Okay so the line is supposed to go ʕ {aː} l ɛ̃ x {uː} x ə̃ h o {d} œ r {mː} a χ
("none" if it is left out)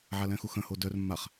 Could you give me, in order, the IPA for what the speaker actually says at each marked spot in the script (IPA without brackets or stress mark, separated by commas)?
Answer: a, u, d, mː